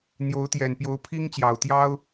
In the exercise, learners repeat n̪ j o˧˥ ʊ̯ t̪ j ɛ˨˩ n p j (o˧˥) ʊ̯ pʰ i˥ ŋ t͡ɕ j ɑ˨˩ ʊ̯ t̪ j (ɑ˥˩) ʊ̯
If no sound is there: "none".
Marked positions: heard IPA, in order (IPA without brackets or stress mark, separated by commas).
o˧˥, ɑ˥